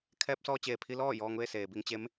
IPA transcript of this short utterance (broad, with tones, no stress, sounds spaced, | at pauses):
kʰ ɛː˧ p̚ s ɔː˧ t͡ɕ eː˩ pʰ i˧ l ɔː˥˨ j ɔː˧ ŋ ʋ e˥˨ s eː˩ b i˧ ŋ t͡ɕ e˧˥ m